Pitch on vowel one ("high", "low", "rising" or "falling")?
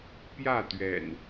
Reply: falling